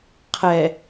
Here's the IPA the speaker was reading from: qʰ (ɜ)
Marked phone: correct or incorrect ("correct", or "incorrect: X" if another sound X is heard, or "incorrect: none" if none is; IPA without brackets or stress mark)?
incorrect: ɛ